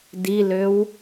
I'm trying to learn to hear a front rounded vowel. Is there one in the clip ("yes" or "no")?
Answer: yes